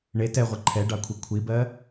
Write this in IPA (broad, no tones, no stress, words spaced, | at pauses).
ɳe tɛʁʷɛ ǃʰɛɖɑkʷʰi kʷʰibɜ